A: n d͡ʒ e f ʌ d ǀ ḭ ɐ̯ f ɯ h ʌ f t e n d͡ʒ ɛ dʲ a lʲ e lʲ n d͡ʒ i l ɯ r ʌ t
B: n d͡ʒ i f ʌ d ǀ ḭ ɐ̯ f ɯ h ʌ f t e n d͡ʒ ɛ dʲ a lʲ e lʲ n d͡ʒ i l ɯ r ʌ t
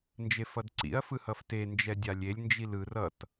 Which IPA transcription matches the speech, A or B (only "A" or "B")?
A